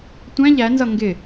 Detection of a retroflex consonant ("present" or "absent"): absent